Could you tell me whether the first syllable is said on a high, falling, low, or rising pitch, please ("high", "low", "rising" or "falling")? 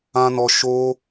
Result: high